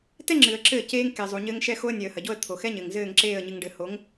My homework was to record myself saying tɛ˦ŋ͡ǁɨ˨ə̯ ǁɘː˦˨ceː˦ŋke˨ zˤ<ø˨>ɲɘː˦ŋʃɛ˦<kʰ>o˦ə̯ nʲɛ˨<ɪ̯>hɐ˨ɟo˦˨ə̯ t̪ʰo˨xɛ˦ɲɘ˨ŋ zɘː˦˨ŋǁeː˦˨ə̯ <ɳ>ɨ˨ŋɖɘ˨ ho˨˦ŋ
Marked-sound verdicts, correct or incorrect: incorrect: u˨, incorrect: x, incorrect: ə̯, incorrect: ɲ

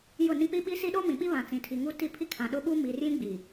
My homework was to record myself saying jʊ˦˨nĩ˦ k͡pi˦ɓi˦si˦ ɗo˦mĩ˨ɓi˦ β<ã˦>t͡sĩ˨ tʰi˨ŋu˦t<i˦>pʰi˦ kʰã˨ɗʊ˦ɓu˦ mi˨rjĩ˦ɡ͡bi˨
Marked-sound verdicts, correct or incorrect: incorrect: ã˨, incorrect: i˦˨

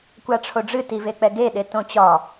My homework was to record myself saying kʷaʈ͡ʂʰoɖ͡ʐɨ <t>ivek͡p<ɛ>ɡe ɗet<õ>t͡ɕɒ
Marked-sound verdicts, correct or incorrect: correct, correct, correct

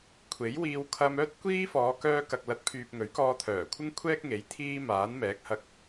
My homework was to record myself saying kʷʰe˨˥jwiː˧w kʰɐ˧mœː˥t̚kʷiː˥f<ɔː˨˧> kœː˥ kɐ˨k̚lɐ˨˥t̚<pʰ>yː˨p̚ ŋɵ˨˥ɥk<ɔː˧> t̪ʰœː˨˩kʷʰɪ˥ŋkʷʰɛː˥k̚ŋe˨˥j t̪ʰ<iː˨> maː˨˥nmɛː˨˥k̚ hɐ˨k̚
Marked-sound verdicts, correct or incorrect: correct, correct, correct, incorrect: iː˧

